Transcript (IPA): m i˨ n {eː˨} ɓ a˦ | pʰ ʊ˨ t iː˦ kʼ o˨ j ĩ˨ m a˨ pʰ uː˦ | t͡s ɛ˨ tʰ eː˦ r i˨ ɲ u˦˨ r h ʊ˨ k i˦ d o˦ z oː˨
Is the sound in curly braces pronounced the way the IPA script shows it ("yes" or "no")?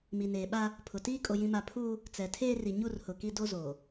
yes